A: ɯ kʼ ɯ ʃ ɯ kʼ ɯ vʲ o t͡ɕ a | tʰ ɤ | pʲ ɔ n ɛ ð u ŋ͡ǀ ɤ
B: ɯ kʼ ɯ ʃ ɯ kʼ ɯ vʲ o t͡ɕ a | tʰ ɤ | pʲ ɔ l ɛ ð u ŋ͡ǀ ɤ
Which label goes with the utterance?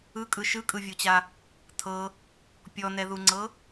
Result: A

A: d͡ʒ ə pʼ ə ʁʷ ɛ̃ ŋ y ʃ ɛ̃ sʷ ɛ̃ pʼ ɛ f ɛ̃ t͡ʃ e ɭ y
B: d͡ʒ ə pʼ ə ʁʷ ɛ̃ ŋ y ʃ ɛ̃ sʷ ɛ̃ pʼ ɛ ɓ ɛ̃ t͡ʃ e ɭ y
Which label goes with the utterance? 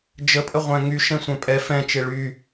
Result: A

